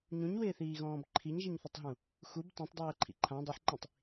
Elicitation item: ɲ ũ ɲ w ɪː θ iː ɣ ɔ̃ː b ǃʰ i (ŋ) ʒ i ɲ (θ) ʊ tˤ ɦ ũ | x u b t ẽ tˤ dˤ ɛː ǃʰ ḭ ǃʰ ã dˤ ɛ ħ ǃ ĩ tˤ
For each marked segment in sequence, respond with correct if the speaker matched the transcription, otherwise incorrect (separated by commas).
incorrect, correct